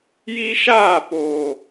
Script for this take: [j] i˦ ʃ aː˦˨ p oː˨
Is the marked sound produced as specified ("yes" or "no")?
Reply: yes